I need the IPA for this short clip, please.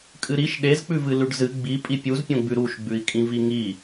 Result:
kʼ ɨ ɾ i ʃ ɗ e z k͡p ʉ v ɨ l ʉ ɖ z ɨ ɡ͡b i pʼ i pʲ u z pʲ õ ɡ͡b ʉ ɾ u ʃ ɡ͡b ʉ i̯ kʼ ĩ v i ŋ i

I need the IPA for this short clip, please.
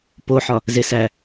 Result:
p o ħ ɒ | z e s æ

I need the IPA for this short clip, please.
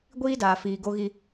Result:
ɡʷ iː˦ d aː˨ f iː˨ ɡ o˦ ɣ i˦

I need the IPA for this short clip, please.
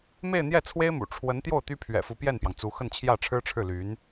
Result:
m e˥˧ ɪ̯ n̪ j ɛ˥˩ t͡sʰ w e˥ ɪ̯ m ṵ˨˩ ʈ͡ʂʰ w ə˧˥ n t̪ j o˥˩ ʊ̯ t̪ y˥ pʰ ɥ ɛ̰˨˩ f u˧˥ p j ɛ˥˩ n p j ɑ˩ ŋ t͡s u˧˥ x ə˥˧ n t͡ɕʰ j ä˥˩ ʈ͡ʂʰ ɻ̩˥ ʈ͡ʂʰ ɻ̩˥˩ l y˧˥ n

